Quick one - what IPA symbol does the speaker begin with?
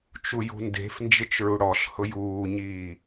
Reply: t͡ʃ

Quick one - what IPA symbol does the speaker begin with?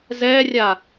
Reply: z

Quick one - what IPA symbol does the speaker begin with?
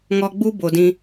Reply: ŋ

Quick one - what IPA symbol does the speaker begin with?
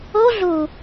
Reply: o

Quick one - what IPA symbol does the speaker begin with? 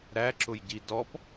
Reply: ɾ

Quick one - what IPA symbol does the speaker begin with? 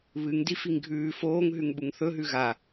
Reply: β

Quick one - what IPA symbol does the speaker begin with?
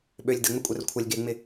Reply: ɓ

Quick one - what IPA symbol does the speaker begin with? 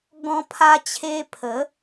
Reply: ɡ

